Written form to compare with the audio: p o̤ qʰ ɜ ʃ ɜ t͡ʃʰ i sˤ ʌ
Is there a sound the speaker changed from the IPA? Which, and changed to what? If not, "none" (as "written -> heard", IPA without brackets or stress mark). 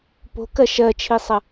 qʰ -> k